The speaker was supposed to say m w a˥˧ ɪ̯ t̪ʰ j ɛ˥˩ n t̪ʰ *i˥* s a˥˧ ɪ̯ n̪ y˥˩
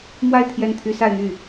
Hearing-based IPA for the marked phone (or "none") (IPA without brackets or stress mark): y˥